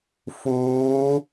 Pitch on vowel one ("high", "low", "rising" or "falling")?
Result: rising